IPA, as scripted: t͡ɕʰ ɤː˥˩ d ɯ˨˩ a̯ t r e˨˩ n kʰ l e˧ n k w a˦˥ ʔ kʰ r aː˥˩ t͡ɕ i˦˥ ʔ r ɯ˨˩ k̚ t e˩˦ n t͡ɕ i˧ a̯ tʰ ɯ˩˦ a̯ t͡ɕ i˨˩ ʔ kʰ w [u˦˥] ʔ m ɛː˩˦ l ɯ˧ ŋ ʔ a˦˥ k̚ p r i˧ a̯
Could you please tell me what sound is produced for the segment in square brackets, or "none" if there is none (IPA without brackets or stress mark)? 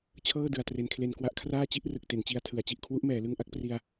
u˦˥